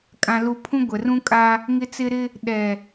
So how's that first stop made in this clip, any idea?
ejective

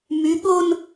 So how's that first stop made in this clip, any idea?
implosive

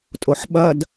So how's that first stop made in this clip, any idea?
ejective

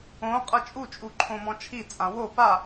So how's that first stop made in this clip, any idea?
ejective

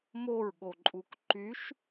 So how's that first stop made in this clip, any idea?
implosive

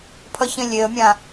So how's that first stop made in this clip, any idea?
aspirated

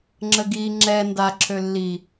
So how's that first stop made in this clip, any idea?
click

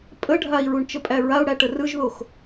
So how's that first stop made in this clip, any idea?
ejective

